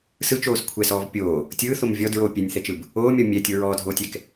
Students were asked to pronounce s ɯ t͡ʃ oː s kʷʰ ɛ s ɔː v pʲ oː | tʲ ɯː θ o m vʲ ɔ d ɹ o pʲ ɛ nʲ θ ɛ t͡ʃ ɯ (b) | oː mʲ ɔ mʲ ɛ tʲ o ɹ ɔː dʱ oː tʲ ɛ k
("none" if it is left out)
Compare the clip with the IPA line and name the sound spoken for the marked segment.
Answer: b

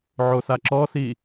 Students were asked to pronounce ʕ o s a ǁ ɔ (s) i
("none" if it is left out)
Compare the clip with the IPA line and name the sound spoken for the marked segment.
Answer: s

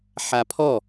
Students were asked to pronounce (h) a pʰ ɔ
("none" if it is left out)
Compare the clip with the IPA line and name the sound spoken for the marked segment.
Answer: ħ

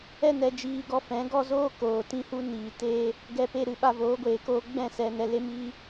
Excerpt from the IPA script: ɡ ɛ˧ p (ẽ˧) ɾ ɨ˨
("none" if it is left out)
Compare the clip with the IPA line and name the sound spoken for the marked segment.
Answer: e˧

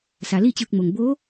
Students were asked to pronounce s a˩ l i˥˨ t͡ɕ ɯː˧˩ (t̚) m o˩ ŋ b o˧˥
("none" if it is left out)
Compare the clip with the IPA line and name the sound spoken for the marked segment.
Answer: k̚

